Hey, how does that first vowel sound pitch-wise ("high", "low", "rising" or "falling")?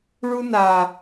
high